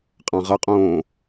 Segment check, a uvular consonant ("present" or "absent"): present